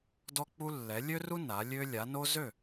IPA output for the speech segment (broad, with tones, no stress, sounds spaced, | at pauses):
d ɔ˦ k͡p u˦ lː ɛ˨˦ lʲ ø˦ r u˦ n a˨˦ lʲ ø˦ lʲ a˨˦ n o˦ z ø˦˨